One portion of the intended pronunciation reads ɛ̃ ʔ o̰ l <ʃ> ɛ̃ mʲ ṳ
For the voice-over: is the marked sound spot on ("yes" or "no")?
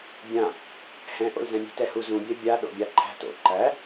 no